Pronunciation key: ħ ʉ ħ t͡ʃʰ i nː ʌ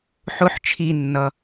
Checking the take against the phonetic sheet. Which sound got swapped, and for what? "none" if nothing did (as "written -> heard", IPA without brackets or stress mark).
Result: ʉ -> ʊ